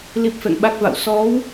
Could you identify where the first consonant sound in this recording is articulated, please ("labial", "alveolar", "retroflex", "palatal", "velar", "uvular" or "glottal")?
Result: alveolar